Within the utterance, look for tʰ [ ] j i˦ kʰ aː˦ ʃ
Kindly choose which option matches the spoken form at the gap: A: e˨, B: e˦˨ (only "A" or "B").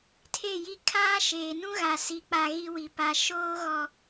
B